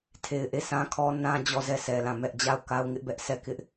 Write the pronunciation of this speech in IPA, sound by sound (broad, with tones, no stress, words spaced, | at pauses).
tʰe˨ɪ̯ʔe˦˨sã˦ kʰɔ˦ nã˦d͡ʑɔ˦˨zɛ˦˨sʰɛ˨ lã˦˨mɛ˦ʔ d͡ʑa˦˨ʊ̯ka˦ʊ̯ ŋɪ˦ʔbɛ˦ʔ sɛ˦˨ kɪ˦ʔ